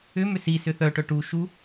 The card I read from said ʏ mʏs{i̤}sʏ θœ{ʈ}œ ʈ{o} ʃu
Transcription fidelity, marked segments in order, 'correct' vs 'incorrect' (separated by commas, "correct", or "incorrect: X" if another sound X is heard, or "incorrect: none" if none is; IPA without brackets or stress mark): incorrect: i, correct, incorrect: u